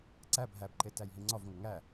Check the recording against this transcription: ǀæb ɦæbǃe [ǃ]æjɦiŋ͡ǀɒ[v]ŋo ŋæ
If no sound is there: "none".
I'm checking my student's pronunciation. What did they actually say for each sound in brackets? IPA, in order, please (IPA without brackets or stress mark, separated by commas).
t, v